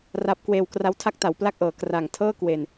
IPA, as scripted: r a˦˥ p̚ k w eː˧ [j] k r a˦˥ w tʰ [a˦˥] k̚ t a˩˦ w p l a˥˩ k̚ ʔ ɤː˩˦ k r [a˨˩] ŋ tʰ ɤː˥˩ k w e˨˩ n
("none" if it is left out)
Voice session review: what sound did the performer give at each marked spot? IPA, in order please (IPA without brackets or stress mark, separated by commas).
w, a˥˩, a˨˩